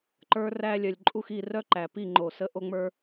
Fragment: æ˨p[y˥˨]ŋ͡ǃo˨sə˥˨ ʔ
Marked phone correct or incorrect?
incorrect